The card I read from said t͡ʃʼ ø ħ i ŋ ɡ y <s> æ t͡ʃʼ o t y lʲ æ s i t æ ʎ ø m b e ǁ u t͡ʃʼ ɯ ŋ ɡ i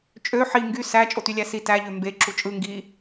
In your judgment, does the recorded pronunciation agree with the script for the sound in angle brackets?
yes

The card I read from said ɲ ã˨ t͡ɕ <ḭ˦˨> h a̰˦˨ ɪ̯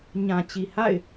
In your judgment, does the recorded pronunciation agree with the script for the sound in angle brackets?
no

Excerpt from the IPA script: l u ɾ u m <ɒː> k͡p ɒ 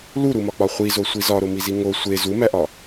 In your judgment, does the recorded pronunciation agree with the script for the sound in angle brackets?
no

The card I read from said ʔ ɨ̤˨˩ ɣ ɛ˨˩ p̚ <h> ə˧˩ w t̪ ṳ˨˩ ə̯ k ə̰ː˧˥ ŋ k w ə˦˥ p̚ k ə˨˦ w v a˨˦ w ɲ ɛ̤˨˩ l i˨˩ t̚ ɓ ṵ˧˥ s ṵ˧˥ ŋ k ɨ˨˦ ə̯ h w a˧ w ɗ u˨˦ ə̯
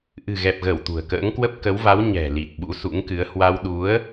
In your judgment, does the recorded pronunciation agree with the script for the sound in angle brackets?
no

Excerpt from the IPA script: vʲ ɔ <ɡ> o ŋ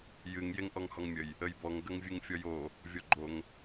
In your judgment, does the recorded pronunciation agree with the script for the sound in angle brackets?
no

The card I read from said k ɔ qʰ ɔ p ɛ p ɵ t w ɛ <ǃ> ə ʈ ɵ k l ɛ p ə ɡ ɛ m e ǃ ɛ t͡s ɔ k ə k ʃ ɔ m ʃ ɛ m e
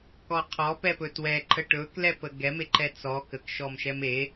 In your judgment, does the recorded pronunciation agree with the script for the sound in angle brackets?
yes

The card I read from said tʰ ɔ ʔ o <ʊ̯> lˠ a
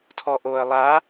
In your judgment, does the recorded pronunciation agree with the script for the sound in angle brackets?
no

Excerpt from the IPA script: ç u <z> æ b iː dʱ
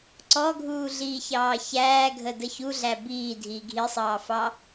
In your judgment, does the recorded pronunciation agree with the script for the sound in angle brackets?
no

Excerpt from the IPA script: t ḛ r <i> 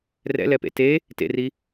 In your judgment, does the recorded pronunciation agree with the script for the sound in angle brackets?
yes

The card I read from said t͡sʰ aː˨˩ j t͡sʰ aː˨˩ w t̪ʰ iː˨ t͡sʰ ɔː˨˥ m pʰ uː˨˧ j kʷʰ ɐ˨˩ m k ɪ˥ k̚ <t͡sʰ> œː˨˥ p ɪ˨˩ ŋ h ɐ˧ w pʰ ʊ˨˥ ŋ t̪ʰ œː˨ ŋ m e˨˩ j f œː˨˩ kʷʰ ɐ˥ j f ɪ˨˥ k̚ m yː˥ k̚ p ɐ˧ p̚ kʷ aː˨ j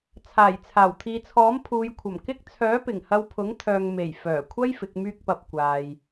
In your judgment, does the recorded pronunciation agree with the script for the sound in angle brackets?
yes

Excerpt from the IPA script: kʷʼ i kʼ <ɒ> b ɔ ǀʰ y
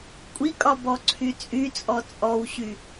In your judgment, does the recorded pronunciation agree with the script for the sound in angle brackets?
yes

